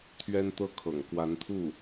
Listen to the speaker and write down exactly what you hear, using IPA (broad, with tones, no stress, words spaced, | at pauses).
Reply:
t̪ʰɥɛ˥nt̪ɤ˥˩ kʰɤ̰˨˩ŋ kwa˧˥nt̪ʰu˥˩